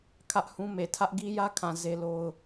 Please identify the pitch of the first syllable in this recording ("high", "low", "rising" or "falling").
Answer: high